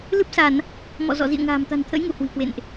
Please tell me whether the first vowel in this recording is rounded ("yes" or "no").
no